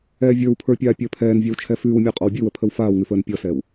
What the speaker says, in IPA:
ɛː vʲ ə˞ w pʰ ə˞ pʲ aː pʲ əː pʰ ɛː n vʲ ɛ w t͡ʃʰ ɛ f ʉː w mʲ ə˞ qʼ ɔ w bʲ ʉ w ə pʰ ə w f aː w ŋ ʉ f əː n pʲ ɔ s ɛː w

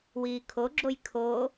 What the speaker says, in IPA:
w iː kʰ o ɡ͡ǁ o j kʰ o

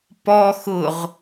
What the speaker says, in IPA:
p ɔ x ʊ ʁ

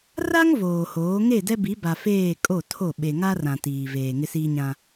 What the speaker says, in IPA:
r a˦ ŋ v oː˨ h oː˨˦ ŋ e˦˨ d ɛ˦ b i˨˦ b a˨ f eː˦˨ kʼ o˦˨ tʰ o˦˨ ɓ e˨ ŋ a˦ r ã˨ t iː˨ v eː˨ ŋ ɪ˦ s iː˦ ɲ ã˦

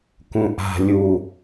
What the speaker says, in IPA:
k ũ ʔ a̤ lʲ u

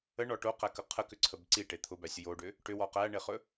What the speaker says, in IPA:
ə ɳ ɔ ʈ o q æ k ə qʰ ə k ʏ ǀʰ ə b ǀ i ʈ e t̪ʰ ʊ b æ sʲ ə j o ɖ ʏ | ʈ ʏ w ɔ q æ ɳ e χ ɵ

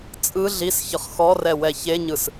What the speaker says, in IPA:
t͡sʼ ɯ ɮ i s ç ɯ χ x ɔ r ɛ w ɛ ç e ɲ ɯ s

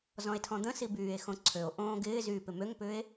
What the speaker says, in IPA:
z ɔ̃ e̯ tʰ ɔ̃ d̪ ə̃ s i b yː e̯ x õ ǀʰ ø o̯ ʔ õː ɡ ɪː z yː p ɪ m ø ŋ p ʏː e̯

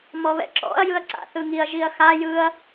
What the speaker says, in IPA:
m ɔ β ɛ̰ ǁ ɔ̰ ɐ̯ j ɯ ɐ̯ ǀ a̰ θ ɯ ŋ i ɐ̯ ʒ i ɐ̯ x a j ɯ ɐ̯

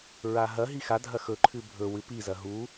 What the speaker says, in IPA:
ɹ a ɦ ɐ ɦ i x a dʱ ɐ x ɵ ǃʰ ɨ bʱ ɵ w ɨ p i z ɐ ɦ u

